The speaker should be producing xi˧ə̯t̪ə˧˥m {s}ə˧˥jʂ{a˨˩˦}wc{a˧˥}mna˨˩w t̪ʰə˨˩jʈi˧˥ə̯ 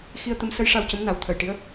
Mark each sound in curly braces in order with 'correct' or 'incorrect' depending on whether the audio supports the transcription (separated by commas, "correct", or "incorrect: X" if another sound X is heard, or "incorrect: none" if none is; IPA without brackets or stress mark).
correct, incorrect: a˧, incorrect: ə˧˥